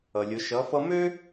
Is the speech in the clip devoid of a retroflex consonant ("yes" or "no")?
yes